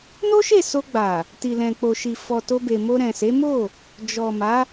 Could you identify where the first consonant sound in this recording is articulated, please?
alveolar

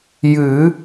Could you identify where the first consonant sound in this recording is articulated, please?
palatal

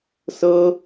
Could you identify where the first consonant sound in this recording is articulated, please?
alveolar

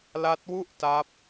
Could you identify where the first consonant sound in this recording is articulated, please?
alveolar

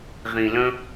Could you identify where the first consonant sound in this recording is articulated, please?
uvular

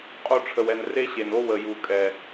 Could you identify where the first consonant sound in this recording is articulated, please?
uvular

